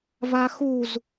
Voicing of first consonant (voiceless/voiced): voiced